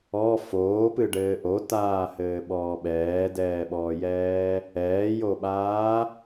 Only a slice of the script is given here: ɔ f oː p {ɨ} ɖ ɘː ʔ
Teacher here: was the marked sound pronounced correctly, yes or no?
yes